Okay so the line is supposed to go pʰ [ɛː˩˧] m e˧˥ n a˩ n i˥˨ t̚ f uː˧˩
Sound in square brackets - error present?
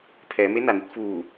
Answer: no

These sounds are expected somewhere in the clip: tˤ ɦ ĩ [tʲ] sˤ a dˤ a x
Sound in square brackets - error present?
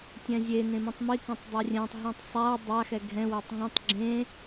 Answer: yes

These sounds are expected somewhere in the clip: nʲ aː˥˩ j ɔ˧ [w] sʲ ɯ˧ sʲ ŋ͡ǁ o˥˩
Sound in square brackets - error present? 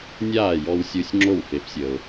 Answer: no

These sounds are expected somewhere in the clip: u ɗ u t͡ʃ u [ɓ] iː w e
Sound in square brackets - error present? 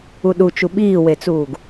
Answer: no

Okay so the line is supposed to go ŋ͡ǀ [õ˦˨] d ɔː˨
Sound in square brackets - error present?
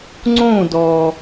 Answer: yes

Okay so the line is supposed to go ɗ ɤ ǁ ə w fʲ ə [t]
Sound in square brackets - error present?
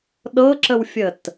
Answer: no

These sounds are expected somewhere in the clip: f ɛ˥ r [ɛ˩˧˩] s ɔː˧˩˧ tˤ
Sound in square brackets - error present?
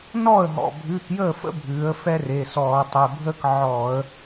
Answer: yes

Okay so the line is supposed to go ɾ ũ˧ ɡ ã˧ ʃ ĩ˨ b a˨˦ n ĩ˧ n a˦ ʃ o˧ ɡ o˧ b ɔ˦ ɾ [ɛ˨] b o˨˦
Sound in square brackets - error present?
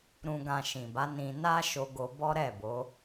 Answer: yes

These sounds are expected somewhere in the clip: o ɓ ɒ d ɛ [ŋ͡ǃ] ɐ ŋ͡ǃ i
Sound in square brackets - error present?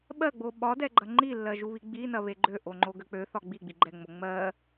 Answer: yes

